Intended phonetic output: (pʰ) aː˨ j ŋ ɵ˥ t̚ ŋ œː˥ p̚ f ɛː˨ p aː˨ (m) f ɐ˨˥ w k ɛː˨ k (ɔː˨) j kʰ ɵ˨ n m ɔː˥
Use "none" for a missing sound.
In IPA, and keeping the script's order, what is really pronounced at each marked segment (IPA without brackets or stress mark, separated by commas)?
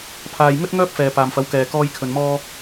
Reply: pʰ, m, ɔː˧